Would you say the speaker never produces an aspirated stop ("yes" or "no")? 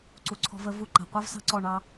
no